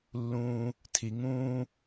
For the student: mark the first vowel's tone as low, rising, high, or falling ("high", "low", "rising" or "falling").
high